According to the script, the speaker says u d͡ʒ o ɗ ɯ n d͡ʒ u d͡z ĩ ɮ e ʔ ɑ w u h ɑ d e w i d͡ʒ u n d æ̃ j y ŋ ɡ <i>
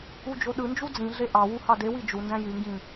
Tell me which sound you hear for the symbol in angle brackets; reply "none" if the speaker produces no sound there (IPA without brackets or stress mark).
ĩ